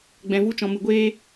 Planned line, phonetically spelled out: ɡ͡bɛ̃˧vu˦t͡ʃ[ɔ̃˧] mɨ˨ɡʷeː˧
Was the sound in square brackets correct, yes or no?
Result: yes